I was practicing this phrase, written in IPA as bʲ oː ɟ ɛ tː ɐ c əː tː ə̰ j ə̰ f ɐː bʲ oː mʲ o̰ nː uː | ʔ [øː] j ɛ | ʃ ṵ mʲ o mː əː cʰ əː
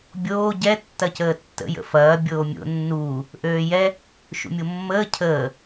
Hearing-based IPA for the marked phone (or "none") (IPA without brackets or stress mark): øː